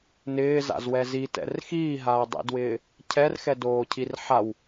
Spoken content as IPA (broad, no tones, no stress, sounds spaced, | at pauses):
n ɪː z a̰ z w ɛ z i t ɛ̰ r x iː ɦ aː dˤ ḭ d w ɪː | cʰ ɛ r x ɛ d oː cʰ i r ħ a w